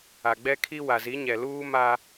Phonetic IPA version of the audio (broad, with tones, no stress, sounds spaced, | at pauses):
a˨ ɡ͡b ɛ˦ kʰ i˦ w a˨ z i˨˦ ɲ ɛ˨ l uː˦ m a˦